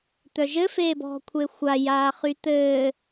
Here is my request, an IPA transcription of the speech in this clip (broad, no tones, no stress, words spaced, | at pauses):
t̪œʒɘ feːbɔ̤ kʷʰexʷa jaːχyt̪ɘː